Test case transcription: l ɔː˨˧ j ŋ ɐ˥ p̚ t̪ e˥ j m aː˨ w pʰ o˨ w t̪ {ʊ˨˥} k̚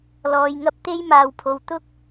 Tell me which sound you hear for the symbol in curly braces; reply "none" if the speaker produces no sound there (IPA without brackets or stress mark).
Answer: ʊ˥